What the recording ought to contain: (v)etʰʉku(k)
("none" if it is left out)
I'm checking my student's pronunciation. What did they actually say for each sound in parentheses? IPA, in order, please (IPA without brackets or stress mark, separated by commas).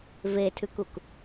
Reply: v, k